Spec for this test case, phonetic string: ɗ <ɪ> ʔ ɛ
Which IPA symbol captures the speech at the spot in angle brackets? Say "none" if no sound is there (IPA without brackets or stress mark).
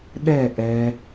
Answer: ɛ